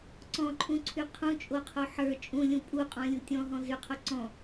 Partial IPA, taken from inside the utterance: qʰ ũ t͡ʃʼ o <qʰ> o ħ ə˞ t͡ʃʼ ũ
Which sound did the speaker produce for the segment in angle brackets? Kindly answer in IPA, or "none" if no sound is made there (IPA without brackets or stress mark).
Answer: qʰ